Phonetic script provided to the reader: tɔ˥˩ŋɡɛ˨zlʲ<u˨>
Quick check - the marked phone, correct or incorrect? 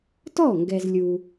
correct